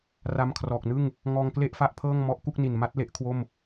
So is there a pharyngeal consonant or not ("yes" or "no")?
no